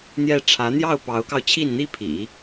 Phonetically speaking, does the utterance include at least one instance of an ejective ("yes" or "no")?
no